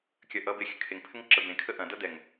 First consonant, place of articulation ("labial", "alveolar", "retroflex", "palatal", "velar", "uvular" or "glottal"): velar